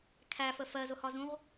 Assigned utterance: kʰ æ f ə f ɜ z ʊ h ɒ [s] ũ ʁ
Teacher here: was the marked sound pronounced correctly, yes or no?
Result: no